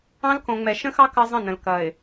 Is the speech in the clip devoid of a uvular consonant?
yes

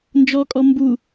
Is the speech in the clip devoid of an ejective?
no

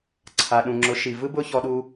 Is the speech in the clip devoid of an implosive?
no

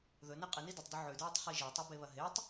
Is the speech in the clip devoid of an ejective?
no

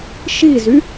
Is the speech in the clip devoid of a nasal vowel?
yes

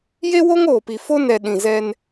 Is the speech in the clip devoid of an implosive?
no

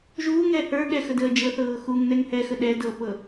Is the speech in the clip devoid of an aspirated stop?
yes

